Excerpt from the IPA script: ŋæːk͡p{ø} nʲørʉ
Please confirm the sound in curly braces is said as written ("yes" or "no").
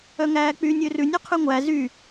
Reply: no